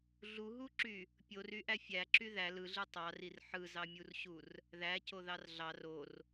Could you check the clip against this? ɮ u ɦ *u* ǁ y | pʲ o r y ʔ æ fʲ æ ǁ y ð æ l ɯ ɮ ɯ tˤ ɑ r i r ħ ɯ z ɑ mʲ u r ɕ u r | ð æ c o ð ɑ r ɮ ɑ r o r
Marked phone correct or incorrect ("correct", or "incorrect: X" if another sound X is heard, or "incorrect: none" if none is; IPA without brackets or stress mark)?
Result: correct